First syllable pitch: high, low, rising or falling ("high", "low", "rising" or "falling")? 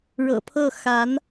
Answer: low